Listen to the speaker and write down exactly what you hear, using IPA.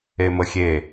e m ə xʲ e

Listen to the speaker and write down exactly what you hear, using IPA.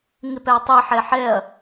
ŋ ɪ p ɛ ɐ̯ tˤ i ħ ɛ ħ ɛ ɐ̯

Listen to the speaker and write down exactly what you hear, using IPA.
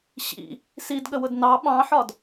ɕ ḭ | s i d ɠ ə w ʊ d n ɑ ɓ ɑ̃ ħ ɒ d

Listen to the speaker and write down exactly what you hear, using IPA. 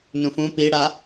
n ũ f ũ p i ɽ a

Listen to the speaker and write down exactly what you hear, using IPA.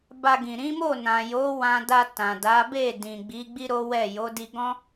b a˧ ɡ ĩ˨ ɾ ĩ˨˦ m o˦˨ n ã˨ j o˨˦ w ã˧ d a˧ t ã˨ d a˨˦ b e˦˨ d ĩ˨ ɡ͡b i˨˦ ɡ͡b i˦ ɾ o˦ w ɛ˦˨ j o˨˦ d i˧ ɡ ɔ̃˦

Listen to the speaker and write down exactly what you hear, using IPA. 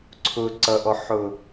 ǀʰ ʊ ǀ ʌ ʔ ɔ ħ ʊ

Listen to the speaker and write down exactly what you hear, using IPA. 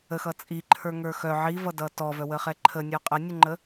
ə x ʌ t͡sʼ i ǃʰ ə˞ ŋ ə˞ x œ ʕ i v ʌ d ʌ t ɔ v œ w ə χ ɛ ǃʰ ə nʲ ɔ qʼ ə nʲ ə ŋ͡ǃ ə

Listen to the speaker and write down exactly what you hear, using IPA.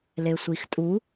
l e sʷ i x tʼ u

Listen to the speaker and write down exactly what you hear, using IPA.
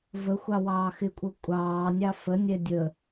v ə xʷ ɑ w ɑː x ɪ kʷʼ ɤ kʷʼ ɑː nʲ ɑ f ə nʲ ɛ dʲ ə

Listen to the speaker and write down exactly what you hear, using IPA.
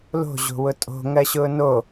l o̤ ʑ o̤ w ʊ tʼ o̤ ŋ ɜ ɕ ʊː n o

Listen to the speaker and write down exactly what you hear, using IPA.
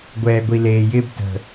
ɡʷ ɛː˨ ɡʷ i˨ l eː˨ j ɪː˧ b t ə̤˨

